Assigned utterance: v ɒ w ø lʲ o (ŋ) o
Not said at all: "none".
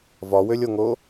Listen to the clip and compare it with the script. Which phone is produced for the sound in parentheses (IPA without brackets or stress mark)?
ŋ